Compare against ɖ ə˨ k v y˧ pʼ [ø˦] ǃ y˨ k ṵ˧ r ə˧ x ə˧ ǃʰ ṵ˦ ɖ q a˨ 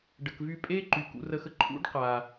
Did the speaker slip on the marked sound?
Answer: yes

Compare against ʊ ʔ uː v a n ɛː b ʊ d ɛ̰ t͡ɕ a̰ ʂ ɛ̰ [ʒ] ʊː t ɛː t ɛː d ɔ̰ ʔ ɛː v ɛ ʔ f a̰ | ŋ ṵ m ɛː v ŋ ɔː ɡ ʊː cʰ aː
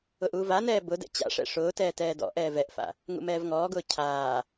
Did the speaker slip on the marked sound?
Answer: yes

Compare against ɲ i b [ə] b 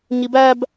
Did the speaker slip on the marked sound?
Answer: yes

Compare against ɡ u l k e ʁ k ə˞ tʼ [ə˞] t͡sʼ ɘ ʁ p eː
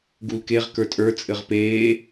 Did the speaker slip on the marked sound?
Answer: no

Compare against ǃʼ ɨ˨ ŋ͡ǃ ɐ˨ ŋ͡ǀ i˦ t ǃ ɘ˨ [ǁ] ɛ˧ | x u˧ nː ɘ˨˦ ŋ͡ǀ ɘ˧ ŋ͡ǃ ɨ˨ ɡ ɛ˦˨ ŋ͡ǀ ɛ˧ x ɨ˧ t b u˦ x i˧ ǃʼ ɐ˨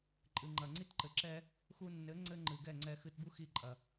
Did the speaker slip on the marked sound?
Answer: no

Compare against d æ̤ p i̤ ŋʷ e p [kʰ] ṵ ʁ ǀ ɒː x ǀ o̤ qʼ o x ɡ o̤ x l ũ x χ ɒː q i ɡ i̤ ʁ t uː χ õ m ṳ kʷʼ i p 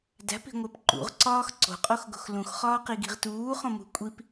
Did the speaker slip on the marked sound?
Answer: yes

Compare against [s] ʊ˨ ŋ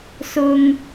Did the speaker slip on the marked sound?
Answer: no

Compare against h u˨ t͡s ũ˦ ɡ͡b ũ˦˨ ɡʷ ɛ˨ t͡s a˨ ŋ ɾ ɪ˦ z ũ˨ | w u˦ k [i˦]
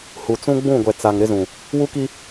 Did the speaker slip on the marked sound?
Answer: no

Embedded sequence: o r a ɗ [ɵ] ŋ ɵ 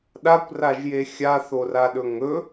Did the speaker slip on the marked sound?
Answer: no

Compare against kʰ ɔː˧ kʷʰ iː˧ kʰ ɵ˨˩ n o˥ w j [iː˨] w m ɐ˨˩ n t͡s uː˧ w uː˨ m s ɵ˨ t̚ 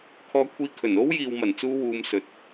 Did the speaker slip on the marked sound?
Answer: no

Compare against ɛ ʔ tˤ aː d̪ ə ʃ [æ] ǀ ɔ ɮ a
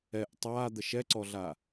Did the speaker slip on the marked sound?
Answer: yes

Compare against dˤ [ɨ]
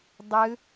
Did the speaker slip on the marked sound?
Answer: no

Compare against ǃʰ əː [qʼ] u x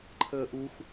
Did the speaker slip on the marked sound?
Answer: yes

